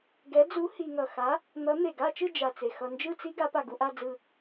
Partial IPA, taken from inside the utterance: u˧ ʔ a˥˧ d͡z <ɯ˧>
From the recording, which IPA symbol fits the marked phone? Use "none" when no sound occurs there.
ɯ˧˩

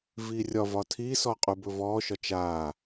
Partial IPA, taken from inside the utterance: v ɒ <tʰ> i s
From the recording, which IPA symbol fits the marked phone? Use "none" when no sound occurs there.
tʰ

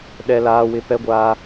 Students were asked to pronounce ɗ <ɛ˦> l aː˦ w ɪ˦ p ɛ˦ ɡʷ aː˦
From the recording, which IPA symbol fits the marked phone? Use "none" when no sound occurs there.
ɛ˦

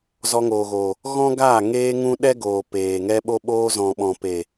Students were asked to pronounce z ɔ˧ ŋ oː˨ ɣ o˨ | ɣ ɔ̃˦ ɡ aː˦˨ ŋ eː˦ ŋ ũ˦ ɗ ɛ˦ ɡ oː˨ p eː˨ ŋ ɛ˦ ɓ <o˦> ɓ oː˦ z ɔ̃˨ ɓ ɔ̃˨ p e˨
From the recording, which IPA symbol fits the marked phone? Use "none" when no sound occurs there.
o˦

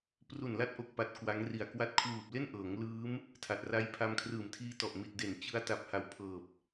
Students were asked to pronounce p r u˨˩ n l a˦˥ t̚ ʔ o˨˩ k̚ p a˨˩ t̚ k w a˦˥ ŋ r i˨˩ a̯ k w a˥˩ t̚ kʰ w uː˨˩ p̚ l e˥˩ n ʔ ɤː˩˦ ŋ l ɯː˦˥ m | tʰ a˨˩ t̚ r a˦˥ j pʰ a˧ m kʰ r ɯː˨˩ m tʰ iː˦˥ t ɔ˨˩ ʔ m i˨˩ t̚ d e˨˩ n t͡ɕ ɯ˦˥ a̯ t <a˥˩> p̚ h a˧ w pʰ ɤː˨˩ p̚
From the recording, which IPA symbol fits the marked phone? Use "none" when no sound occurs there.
a˨˩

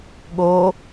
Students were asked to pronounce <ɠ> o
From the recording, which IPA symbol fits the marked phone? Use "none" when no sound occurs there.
ɠ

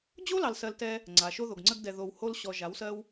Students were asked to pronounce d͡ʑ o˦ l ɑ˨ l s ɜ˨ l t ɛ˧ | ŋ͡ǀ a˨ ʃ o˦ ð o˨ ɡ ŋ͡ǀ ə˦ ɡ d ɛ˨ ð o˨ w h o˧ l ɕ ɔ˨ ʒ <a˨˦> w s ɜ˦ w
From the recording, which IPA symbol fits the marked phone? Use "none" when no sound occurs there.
a˨˦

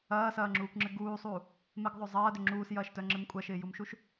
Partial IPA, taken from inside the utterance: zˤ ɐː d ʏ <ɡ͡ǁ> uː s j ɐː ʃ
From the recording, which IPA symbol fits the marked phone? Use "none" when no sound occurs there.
ŋ͡ǁ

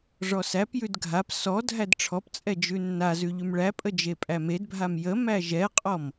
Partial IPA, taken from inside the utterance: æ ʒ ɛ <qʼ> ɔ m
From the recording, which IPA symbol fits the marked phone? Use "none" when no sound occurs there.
qʼ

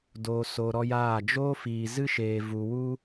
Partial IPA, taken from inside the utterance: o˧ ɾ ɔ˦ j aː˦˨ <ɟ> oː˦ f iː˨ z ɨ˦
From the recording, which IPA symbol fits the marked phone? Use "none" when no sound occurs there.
d͡ʒ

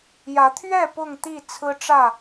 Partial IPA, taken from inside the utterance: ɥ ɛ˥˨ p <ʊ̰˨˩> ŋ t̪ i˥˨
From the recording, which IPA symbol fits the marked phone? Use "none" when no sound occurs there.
ʊ˥˨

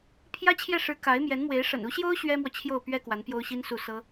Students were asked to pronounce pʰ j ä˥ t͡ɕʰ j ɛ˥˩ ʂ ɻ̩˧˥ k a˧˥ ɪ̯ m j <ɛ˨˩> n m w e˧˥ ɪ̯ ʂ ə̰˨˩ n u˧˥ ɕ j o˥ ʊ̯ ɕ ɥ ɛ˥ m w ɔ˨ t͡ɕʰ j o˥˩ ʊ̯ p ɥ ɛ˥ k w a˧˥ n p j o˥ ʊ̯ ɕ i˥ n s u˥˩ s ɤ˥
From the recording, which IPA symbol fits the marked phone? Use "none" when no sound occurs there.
ɛ˧˥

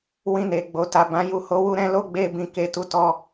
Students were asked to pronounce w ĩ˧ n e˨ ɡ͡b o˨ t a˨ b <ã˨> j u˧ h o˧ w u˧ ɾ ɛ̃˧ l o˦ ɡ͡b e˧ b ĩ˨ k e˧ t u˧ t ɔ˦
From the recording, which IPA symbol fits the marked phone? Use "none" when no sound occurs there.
ã˨˦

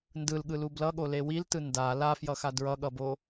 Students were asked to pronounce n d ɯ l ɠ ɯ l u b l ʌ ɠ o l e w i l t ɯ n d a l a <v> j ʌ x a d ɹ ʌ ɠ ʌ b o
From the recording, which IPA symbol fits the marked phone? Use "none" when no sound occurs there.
f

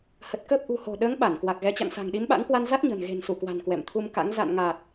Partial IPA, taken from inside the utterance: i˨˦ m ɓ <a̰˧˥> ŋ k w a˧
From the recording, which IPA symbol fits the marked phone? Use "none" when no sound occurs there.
a̰˧˥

